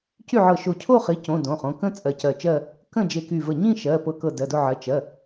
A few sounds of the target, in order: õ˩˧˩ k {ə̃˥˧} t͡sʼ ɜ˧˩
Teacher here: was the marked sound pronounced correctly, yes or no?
yes